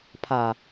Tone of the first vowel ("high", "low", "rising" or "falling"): low